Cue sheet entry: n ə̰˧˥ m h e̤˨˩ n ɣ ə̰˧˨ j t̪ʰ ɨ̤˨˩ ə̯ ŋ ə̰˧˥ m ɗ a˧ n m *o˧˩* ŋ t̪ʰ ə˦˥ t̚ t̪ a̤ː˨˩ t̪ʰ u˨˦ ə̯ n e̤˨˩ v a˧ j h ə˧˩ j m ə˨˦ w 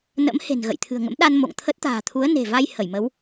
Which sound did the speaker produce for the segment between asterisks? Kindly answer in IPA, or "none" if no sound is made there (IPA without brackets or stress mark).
o̰˧˨